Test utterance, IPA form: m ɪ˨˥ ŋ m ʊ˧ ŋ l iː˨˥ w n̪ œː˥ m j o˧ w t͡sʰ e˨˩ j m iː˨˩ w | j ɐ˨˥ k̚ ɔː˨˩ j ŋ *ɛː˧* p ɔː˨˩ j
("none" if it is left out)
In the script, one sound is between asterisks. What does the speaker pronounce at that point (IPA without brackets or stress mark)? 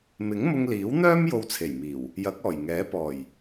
ɛː˨˥